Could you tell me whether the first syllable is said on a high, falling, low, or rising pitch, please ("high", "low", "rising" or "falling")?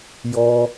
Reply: high